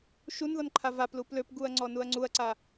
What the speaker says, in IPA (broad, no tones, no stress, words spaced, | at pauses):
ʃunðɔn ǃʰavaplu pløpɡuɐ̯ ŋ͡ǀɔnuɐ̯ŋ͡ǀuɐ̯ǀa